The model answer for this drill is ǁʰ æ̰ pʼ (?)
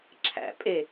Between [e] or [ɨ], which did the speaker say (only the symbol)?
e